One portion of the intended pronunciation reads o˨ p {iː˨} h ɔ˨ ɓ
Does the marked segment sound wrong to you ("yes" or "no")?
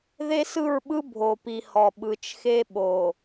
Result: yes